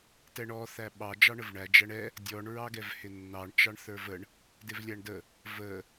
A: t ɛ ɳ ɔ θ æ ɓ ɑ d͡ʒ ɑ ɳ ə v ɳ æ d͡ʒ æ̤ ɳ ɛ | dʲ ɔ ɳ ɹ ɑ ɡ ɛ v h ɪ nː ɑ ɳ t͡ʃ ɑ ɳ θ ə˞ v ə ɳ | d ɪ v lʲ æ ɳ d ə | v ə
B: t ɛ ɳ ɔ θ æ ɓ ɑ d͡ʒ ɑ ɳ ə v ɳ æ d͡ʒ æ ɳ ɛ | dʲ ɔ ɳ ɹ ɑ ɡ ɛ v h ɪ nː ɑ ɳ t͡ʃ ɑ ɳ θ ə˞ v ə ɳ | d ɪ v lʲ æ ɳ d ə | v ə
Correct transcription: B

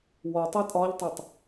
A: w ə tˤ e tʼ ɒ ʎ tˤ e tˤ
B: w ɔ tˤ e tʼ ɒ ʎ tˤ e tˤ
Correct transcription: B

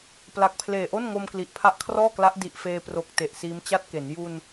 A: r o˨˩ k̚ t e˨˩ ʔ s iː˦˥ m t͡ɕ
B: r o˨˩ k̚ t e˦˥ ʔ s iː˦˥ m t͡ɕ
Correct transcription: A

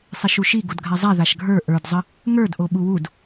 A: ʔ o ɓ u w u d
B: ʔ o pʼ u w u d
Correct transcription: A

